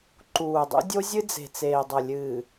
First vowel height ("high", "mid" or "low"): high